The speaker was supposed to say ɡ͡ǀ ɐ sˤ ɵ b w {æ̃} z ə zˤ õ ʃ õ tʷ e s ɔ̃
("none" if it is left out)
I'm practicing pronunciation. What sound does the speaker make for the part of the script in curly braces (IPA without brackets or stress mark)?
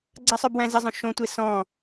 æ̃